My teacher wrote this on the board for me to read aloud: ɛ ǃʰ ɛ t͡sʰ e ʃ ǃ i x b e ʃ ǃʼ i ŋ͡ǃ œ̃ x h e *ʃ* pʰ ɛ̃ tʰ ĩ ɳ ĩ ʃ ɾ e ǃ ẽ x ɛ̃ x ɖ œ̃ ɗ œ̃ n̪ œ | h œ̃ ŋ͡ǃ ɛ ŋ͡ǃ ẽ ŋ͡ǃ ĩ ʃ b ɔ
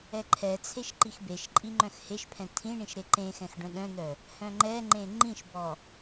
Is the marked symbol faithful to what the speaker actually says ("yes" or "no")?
yes